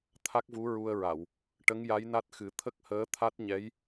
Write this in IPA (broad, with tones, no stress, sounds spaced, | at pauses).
t̪ʰ a˦˥ k̚ v u˧˥ ɹ u˧ ə̯ ɹ a˨˩˨ w | ʈ ə˧˥ ŋ j a˧˥ j n a˦˥ t̚ x ɨ˨˩˦ t̪ʰ ə˦˥ k̚ h əː˧˥ t̪ʰ a˦˥ t̚ ɲ ɛ˧˥ j